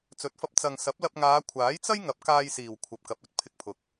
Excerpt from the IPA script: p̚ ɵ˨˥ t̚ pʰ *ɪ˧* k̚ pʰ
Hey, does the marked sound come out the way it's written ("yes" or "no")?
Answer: yes